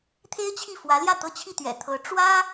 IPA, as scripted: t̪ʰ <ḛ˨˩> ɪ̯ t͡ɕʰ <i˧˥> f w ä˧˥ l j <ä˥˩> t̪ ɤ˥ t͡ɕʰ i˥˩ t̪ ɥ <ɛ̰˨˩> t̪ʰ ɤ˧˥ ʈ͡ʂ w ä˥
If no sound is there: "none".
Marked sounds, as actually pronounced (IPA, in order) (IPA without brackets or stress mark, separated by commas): e˥, i˥˩, ä˥˩, ɛ̰˨˩